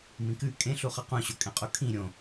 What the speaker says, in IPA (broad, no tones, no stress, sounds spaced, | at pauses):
m ĩ k ʉ kʼ ẽ ɬ u χ ɐ q ũ ɕ o kʼ ẽ qʼ u kʰ ĩ ɾʲ õ